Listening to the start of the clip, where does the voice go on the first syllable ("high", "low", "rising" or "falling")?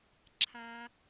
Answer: low